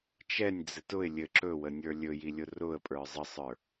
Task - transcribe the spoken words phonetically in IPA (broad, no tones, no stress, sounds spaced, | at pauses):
t͡ʃ ɛ nʲ d͡z ɘ t ʊ ɪ̯ lʲ ɘ ǁ ɵ w ə nʲ ə˞ lʲ ɵ j i lʲ ʊ r ʊ ə̯ pʼ ə˞ zˤ ə sˤ ə˞